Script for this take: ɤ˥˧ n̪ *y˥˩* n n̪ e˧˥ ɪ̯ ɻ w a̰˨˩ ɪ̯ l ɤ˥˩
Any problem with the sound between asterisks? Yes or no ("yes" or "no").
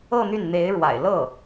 no